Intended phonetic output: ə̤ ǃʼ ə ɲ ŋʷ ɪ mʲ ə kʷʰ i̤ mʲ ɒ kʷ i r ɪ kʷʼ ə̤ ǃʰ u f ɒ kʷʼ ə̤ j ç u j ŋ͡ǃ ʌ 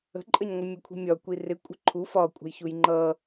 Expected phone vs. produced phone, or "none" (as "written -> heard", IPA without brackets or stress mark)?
none